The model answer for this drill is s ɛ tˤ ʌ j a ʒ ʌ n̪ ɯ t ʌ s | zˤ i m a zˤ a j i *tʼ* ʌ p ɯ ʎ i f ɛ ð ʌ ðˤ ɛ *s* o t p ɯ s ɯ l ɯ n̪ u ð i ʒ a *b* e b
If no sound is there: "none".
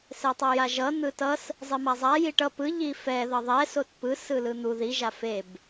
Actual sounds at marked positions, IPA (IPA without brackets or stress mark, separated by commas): ʈ, s, f